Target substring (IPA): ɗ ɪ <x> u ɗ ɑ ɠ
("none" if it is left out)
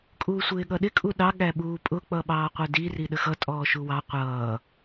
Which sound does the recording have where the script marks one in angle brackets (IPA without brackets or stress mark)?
kʼ